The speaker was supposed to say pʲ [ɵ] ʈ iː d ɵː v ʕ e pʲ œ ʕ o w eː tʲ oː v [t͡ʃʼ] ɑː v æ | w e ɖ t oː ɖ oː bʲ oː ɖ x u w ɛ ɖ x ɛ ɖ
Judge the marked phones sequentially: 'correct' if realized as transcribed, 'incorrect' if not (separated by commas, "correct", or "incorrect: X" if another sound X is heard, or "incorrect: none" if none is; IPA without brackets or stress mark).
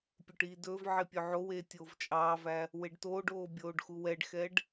correct, correct